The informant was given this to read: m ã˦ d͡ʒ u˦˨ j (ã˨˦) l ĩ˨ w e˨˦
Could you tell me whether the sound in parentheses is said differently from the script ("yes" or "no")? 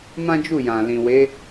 yes